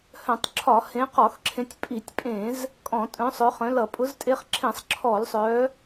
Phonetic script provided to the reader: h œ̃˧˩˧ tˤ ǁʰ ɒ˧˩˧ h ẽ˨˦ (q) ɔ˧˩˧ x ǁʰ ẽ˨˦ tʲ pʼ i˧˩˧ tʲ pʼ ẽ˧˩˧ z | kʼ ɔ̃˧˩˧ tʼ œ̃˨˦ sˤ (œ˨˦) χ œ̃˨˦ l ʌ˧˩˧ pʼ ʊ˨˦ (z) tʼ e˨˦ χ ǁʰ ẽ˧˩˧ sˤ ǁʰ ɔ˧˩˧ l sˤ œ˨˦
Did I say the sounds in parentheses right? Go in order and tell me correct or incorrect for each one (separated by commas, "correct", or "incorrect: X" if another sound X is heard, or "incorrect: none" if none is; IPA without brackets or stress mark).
correct, correct, correct